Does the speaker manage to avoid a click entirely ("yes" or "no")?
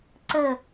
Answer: no